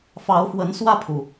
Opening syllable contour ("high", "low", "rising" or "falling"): rising